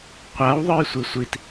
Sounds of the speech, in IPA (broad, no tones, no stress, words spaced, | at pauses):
qʷaw ðˤə˞jsʷisʷit